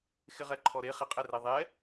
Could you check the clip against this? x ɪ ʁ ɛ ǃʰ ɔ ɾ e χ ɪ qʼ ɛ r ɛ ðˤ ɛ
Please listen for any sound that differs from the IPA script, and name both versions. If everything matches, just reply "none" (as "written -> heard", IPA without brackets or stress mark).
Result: none